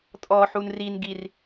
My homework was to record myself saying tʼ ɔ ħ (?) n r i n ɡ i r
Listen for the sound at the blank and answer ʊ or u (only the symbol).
u